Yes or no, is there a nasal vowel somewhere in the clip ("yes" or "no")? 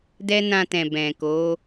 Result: yes